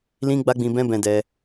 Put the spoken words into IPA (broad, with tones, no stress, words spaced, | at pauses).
lĩ˦ɡ͡ba˦ɡ͡bĩ˧ bɛ̃˦bɛ̃˧dɛ˧